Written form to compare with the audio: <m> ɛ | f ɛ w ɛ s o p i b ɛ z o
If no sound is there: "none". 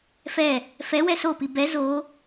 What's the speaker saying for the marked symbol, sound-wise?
f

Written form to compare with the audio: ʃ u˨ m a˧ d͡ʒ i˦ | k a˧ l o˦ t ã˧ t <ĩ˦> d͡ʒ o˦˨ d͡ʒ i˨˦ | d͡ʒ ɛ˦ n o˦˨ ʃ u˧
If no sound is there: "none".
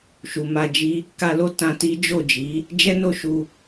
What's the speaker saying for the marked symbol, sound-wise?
i˦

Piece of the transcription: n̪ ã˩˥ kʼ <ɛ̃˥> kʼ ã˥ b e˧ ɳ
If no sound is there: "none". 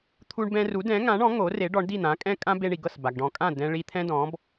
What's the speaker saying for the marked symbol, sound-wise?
ɛ̃˥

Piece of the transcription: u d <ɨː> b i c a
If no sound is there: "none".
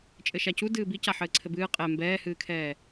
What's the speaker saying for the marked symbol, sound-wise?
ɨː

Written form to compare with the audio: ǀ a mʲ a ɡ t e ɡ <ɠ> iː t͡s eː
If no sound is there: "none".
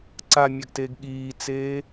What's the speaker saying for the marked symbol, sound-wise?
ɠ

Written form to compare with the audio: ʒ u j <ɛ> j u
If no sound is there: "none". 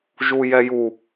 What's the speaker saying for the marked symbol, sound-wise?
ɛ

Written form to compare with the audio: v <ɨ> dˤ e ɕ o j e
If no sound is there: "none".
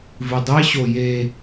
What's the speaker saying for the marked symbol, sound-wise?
ɨ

